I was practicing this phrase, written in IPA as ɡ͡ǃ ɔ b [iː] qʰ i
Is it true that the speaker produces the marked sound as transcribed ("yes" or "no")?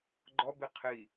no